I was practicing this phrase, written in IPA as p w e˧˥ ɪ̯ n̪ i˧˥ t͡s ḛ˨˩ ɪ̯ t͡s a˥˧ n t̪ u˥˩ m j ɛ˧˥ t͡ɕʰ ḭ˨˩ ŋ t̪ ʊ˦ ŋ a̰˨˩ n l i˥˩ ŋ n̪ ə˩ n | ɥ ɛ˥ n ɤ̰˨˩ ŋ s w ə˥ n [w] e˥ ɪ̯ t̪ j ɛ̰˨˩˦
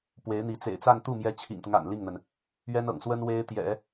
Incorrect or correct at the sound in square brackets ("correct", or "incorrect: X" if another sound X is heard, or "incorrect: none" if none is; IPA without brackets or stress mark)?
correct